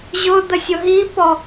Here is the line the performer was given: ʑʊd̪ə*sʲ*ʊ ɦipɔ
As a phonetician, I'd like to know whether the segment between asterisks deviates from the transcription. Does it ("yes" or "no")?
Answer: no